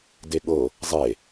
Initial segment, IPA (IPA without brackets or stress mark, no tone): d